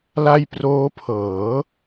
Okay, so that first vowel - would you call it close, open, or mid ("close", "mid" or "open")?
open